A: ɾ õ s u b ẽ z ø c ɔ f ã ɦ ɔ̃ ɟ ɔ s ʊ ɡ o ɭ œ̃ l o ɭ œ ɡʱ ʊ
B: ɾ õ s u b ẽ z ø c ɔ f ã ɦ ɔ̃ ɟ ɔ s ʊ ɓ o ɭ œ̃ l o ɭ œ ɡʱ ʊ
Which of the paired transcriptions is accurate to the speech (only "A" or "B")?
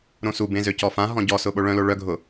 B